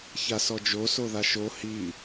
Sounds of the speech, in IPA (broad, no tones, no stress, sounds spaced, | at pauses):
ç a s ɔ d͡ʒ o s o ð a ʃ o h i